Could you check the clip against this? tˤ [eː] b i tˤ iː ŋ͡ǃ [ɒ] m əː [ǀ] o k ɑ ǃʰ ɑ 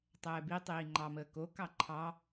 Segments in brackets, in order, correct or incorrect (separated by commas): incorrect, incorrect, incorrect